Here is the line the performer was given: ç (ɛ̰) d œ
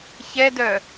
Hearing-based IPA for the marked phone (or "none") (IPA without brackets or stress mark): ɛ